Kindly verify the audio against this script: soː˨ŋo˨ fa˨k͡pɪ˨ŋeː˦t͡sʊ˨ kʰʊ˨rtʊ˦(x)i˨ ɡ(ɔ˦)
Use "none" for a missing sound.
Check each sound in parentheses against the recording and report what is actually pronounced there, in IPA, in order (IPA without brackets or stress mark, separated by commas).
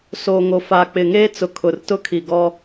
kʰ, ɔ˦